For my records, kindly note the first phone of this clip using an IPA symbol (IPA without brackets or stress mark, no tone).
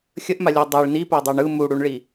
xʲ